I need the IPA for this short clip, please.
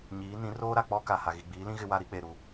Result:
ɲ iː˨˦ n ĩ˨˦ r oː˦ ɾ a˨ k͡p ɔ˦ k a˨ h a˨ ɣ i˨ ɡ͡b iː˨˦ l ĩ˦ ɣ ɪ˦ w a˦ ɾ i˦ k͡p e˨ ɾ u˦˨

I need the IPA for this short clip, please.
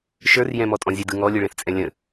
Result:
ʃ ə˞ r j ɛ̃ m ɔ tʼ ɔ̃ zʲ ɛ d ɯ ŋ ɔ lʲ ɯ ɭ ɛ̃ θ t͡sʼ ɛ̃ lʲ ə̃

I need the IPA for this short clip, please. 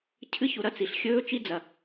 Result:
cʰ ɨ˦ ç u˧ ɾ ɐ˦ t͡s i˨ ɬ xʲ ɵː˦ t͡ʃ i˦ d͡z ɐ˨

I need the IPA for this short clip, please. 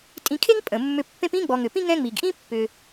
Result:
tʼ ĩ˨ kʰ e˦ ŋ pʼ ə̃˩ mː ʏ˨ pː ẽ˦ p ĩ˥ ɡ͡b ɔ˨ ŋ ʏ˩ p ĩ˥ ŋ ɛ̃˦ ŋ͡m i˩ ɡ ʔ ĩ˥ pː ʏ˩

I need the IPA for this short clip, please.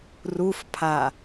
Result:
r u f pʰ a

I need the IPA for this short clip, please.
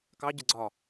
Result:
k ɑ ɟ ə ɡ͡ǀ ɒ

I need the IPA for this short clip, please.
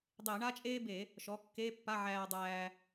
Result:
dˤ e˧˩˧ ɳ a˥ t͡ʃʼ eː˥ b e˧˩˧ | ʃ ɔ˩˥ kː e˧˥˧ pː a˧˥˧ ʕ æː˧ dˤ æː˧

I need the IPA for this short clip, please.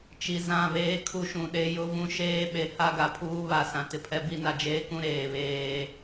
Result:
t͡ʃ i˨ z ã˦˨ β eː˦ kʰ u˦ ʃ ũ˨ ɗ e˦ j ʊ˦ v ũ˦ ʃ eː˦ ɓ e˨ h a˦ ɡ a˨ pʰ uː˦ β a˨ s ã˨ t ɪ˨ pʰ ɛ˦ b i˦ n a˨ d͡ʒ eː˦ k ũ˦ ɾ eː˨ β eː˦

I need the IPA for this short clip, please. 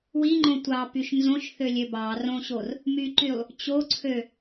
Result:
w i ŋ͡ǃ õ tʷ ɑ p y ʃ n z õ ʃ θ ø lʲ ø b ɑ r õ ɕ o r | m y ǃ y lˠ | t͡ɕ o ǀʰ ø

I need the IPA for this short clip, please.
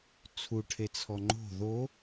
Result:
t͡sʰ u ʈʰ e t͡sʰ ɔ ŋ͡ǃ o̤ ð o

